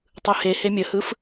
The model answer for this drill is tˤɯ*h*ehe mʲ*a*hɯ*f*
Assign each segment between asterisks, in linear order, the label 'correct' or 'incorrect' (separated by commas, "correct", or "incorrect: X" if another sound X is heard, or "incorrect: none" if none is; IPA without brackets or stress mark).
correct, incorrect: ə, correct